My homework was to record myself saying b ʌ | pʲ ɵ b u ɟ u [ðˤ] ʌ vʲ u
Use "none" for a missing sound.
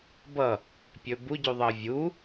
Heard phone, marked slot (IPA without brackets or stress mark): ðˤ